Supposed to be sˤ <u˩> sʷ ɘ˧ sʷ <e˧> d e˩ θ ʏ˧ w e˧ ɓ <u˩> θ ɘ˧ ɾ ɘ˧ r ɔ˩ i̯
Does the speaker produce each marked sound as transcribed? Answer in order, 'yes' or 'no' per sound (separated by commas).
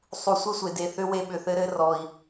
yes, no, no